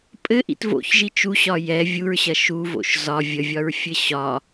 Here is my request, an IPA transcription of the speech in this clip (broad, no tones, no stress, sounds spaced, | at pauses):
pʼ ɘ ʔ ḭ t v o̰ ç ʒ i t͡ʃ u ɕ ɒ j ɛ vʲ u ɹ ɕ ɐ ʃ u v o̰ ʃ z ɒ vʲ ə vʲ ɒ ɹ fʲ ɘ ɕ ɒ